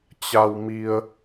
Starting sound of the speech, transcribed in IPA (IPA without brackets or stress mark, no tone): t͡ɕ